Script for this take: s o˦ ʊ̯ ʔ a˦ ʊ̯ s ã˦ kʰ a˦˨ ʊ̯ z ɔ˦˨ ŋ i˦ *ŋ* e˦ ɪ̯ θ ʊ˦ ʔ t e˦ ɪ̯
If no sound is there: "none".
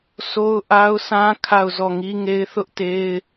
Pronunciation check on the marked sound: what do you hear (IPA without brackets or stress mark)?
ŋ